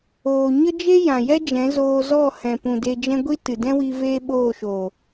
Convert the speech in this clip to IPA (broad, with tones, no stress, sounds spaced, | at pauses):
oː˧ ɲ ə˦ d͡ʒ e˦ j ã˨ j ɛ˦ d͡ʒ ɛ̃˨˦ z oː˧ z ɔ˦˨ h ɛ̃˨ p ũ˨ d e˧ d͡ʒ ɛ̃˦ ɡʷ i˦ t ɨ˨ d ɛ̃˦ w i˧ v eː˦ ɓ oː˦˨ ʃ oː˨